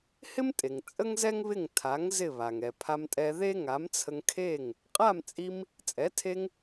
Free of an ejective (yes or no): no